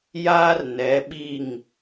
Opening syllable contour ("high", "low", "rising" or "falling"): high